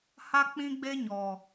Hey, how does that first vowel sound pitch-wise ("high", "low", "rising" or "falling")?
high